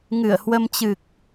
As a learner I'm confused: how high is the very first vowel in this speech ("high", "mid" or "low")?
high